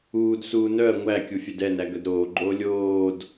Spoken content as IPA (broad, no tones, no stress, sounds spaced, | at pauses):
uː d s uː n œ ɐ̯ ŋʷ æ kʲ u fʲ œ d ɛ n æ ɡ œ d ɾ oː ɡ͡ǃ oː lʲ oː d